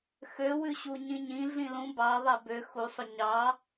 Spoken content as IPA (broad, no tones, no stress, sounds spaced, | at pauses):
x ø w ʉ ɕ u ɲ ĩ ɲ ĩ ɮ ĩ l ũ b ɑ ðˤ æ b ø x u sˤ ɵ ɲ ɑ